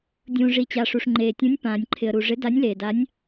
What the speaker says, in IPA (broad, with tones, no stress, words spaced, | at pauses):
dʲũː˩ ʐi˩t͡ɕa˩ʂu˩ʂ ŋ͡ǃeː˩tʲũ˨˥nʲ pãː˩nʲǃʰɪ˩ə̯ɾu˩ ʐɪ˨˥da˨˥nʲleː˩da˨˥nʲ